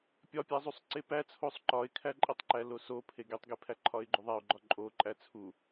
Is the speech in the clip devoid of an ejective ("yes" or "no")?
no